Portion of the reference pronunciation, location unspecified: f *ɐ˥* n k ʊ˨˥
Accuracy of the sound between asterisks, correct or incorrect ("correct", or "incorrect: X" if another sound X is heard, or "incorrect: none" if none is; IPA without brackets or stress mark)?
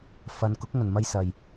incorrect: ɐ˨˧